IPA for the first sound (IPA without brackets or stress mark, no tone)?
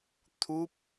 t̪ʰ